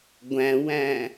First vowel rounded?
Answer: no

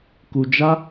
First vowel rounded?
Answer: yes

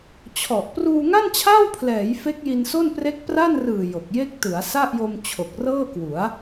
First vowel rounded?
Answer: yes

